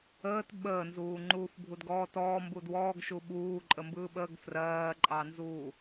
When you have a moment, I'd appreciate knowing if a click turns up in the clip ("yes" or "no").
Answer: yes